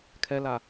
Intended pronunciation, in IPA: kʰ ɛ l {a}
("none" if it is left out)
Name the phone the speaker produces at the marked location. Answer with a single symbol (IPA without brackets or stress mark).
a